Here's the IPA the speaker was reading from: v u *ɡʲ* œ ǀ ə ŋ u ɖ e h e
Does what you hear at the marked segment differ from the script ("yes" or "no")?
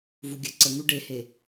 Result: no